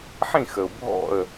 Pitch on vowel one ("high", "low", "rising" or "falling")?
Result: falling